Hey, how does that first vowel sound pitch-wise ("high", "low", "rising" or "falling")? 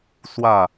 falling